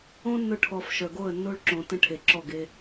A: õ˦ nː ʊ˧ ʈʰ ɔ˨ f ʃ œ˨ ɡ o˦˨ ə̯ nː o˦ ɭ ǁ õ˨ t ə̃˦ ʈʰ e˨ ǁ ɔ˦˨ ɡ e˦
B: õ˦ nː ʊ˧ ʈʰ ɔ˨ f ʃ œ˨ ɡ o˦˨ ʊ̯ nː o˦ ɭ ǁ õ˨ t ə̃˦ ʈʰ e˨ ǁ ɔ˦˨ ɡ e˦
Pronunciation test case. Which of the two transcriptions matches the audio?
A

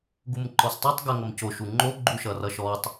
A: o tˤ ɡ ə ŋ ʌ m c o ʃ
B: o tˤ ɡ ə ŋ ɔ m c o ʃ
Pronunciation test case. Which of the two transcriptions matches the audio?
A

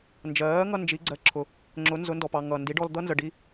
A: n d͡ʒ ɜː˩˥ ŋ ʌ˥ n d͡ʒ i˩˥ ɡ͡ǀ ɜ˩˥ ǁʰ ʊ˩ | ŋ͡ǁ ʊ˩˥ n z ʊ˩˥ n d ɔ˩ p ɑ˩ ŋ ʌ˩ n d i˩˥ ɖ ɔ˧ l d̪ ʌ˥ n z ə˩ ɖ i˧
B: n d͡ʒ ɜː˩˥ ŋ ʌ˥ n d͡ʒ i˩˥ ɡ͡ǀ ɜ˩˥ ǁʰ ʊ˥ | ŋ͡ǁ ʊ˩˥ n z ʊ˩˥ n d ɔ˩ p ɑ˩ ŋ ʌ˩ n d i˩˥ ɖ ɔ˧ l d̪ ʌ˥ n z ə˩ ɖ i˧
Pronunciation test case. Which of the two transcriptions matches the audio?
A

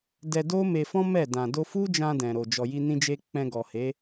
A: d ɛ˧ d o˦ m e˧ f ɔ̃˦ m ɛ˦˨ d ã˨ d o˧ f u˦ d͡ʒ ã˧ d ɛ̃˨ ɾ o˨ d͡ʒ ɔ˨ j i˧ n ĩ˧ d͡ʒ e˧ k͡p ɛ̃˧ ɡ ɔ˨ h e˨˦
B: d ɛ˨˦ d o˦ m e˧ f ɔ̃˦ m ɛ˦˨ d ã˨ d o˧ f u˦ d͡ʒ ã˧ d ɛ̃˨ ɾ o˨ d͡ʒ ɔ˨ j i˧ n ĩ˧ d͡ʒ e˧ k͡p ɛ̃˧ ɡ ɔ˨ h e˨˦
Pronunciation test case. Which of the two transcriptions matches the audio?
A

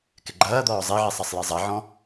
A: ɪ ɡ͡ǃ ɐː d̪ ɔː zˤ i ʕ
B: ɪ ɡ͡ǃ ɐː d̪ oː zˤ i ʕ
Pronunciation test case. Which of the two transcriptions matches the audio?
A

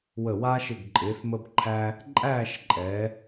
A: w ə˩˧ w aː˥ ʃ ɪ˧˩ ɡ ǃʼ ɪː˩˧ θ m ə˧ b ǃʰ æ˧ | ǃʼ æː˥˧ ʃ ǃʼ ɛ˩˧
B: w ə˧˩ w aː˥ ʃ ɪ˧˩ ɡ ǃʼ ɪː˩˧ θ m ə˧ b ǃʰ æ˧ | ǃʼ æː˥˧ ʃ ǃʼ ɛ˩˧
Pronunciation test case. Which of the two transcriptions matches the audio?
B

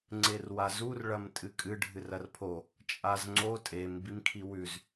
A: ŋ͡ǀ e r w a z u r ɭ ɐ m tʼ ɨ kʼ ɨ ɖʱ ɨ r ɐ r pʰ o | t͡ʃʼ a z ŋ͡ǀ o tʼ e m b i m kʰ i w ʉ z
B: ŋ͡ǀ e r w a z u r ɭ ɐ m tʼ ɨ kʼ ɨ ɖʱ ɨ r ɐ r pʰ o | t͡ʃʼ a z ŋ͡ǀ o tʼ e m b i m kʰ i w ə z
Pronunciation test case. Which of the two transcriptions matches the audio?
A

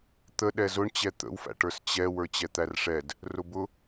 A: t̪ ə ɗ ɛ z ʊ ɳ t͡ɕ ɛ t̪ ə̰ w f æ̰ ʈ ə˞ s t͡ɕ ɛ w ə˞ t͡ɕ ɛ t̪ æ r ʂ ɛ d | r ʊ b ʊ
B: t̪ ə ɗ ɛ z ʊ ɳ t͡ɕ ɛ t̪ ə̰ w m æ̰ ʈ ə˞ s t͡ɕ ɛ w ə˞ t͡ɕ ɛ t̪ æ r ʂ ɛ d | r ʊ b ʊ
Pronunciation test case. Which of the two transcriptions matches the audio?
A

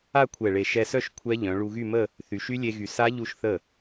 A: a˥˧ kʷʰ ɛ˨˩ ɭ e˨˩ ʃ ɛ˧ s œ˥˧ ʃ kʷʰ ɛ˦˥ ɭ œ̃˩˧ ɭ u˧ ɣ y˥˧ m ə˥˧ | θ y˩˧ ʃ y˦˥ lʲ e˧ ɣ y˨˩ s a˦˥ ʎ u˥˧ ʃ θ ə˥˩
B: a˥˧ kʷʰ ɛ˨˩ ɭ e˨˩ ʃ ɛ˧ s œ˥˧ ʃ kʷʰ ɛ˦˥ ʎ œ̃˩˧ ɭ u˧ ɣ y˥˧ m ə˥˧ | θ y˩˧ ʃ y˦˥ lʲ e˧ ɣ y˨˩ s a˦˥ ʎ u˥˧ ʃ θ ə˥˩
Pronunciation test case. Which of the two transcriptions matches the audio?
B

